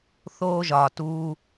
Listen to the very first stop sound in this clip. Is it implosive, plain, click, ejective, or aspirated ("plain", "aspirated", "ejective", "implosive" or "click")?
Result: plain